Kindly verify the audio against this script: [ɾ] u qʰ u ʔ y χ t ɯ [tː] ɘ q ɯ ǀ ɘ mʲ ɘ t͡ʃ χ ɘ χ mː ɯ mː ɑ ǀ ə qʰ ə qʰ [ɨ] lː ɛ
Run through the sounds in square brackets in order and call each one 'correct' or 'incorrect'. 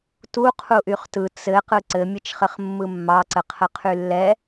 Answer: incorrect: t, incorrect: t͡s, incorrect: y

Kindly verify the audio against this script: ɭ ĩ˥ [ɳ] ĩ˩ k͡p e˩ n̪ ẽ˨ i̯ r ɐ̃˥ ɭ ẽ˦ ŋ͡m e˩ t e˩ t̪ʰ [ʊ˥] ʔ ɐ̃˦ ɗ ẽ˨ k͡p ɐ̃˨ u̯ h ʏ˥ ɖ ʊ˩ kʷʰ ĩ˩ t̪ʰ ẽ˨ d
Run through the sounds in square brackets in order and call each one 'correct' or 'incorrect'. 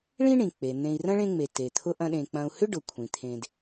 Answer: correct, correct

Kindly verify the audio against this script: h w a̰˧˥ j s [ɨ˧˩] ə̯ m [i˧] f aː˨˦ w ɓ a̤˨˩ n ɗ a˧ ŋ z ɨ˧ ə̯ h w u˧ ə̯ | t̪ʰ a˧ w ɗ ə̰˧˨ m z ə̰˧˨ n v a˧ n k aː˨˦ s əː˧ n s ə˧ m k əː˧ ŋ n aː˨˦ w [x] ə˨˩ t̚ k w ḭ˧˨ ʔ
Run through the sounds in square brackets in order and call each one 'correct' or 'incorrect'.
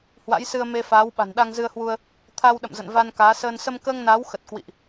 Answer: incorrect: ɨ˧, incorrect: e˧, correct

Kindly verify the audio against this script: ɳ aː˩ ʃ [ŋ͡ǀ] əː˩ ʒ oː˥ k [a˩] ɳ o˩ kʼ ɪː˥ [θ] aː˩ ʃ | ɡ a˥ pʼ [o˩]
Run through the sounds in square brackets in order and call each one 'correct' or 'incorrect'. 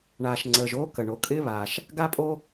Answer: correct, incorrect: ə˩, incorrect: β, incorrect: o˥

